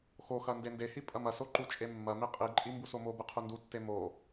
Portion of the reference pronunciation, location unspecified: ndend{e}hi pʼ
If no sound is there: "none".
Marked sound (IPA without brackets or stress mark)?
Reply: e